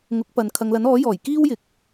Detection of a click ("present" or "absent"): absent